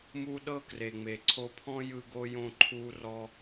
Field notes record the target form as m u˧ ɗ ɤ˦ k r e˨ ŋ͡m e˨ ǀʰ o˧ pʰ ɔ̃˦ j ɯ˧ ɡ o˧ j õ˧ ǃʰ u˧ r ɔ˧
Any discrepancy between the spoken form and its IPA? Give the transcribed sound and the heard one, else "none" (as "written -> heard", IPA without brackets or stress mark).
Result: none